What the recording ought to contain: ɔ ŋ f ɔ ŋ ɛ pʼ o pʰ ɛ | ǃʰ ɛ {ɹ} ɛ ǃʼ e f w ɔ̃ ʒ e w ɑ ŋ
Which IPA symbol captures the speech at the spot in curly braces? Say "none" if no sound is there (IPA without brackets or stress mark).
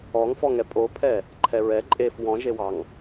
ɹ